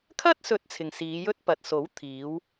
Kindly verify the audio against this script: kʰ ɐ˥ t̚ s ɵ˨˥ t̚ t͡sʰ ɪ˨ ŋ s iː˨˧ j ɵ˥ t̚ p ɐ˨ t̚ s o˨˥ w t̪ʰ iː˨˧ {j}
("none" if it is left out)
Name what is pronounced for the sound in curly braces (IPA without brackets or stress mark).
w